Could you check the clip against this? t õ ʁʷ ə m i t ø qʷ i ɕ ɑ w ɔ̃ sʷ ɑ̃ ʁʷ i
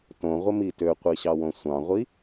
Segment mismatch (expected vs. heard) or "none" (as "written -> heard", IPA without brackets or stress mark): ɔ̃ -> õ